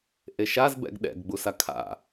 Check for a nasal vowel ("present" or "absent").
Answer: absent